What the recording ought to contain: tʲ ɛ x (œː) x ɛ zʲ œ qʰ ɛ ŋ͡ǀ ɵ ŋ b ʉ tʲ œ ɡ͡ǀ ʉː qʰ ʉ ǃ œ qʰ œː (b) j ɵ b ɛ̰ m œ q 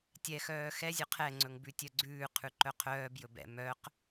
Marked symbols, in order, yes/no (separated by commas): yes, yes